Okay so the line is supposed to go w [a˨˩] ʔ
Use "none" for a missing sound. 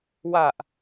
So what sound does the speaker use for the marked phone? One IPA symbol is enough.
a˨˩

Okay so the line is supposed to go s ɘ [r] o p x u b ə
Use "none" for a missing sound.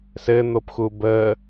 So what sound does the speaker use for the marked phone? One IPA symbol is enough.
n̪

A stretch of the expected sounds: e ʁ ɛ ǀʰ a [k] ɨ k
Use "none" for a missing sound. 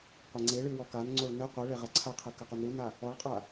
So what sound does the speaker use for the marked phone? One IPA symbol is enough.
qʰ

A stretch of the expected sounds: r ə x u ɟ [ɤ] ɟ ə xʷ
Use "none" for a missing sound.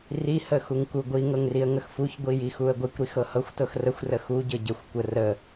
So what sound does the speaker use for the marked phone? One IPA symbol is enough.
ɤ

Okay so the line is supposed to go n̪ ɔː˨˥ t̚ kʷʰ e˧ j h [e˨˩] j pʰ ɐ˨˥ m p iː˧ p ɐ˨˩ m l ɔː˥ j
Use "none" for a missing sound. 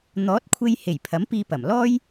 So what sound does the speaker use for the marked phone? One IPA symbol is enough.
e˨˩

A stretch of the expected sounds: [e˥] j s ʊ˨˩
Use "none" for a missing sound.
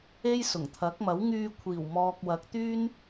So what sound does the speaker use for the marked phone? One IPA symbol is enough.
e˥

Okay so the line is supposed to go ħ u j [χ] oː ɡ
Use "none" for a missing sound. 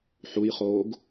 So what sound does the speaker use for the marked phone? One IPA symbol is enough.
χ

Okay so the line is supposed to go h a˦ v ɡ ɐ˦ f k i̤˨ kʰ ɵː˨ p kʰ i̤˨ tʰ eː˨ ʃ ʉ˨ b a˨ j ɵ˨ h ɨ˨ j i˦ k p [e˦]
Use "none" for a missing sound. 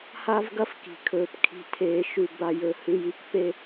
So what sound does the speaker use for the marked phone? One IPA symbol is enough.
e˦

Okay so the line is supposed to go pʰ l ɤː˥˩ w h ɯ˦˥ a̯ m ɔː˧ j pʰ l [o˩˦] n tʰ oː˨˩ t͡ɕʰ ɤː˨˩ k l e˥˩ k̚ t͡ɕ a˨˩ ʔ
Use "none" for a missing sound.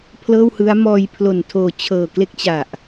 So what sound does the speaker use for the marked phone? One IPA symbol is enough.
o˨˩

